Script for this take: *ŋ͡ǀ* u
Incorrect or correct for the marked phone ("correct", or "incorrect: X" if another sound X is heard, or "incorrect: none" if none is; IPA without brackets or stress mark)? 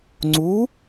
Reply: correct